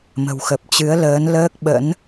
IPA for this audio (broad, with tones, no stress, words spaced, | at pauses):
mə̤˨˩w xə˨˩p̚t͡ɕɨ˨˦ə̯ ləː˨˦n ləː˦˥k̚ɓə̰˧˥n